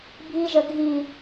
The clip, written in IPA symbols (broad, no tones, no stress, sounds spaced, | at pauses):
bʱ i ʒ ə ɡʱ i